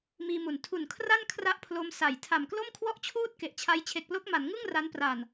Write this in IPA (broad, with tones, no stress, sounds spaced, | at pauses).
m iː˧ m u˨˩ n tʰ u˨˩ n kʰ r a˥˩ n kʰ r a˥˩ ʔ pʰ l o˦˥ m s a˩˦ j tʰ a˨˩ m k l o˥˩ m kʰ w ɔ˥˩ ʔ t͡ɕʰ uː˥˩ t̚ k e˨˩ ʔ t͡ɕʰ a˦˥ j t͡ɕʰ e˨˩ k̚ p l o˦˥ k̚ m a˩˦ n ŋ ɯ˥˩ ŋ r a˦˥ n p r a˨˩ n